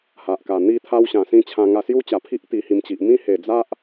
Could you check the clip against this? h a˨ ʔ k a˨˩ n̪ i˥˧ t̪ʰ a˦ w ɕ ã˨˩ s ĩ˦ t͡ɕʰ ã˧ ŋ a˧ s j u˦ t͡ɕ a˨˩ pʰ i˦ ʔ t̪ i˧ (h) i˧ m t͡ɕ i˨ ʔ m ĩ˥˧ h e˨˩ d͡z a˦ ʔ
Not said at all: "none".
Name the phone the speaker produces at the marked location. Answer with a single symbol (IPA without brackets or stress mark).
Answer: h